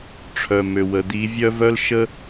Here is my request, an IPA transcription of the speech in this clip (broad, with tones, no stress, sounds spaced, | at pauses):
ʈ͡ʂʰ œ˨ m ø˨ w ə˨ d̪ i˨˦ vʲ œ˦ v œ˦ l ʃ ə˦